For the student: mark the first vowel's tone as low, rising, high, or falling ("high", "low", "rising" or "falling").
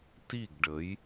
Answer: falling